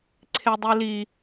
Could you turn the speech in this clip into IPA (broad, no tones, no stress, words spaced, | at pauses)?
ǀʰedˤili